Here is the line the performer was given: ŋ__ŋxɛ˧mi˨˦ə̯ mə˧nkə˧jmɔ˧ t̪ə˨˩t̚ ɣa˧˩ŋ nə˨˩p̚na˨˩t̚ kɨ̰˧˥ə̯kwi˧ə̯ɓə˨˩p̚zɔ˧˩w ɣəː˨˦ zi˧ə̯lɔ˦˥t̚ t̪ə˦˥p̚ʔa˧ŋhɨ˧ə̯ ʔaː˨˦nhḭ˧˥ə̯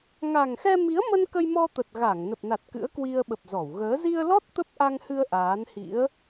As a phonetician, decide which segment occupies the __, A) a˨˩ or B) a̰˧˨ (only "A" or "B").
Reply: A